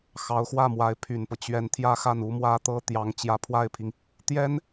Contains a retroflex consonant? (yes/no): no